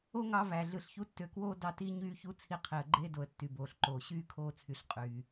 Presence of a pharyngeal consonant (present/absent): absent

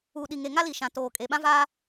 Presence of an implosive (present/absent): present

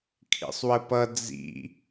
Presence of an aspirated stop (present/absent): present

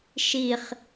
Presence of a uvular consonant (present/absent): present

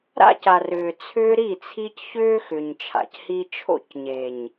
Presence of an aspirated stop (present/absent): present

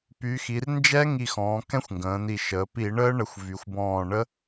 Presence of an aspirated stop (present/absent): absent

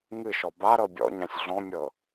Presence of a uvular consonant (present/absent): absent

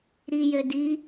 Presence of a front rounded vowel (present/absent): present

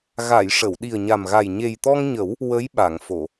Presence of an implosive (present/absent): present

